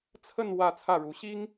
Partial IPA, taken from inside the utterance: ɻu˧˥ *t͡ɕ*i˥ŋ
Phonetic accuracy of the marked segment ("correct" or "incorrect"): incorrect